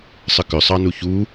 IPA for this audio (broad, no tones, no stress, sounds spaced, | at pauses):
sˤ ə k ʏ sˤ ɑ n u ç u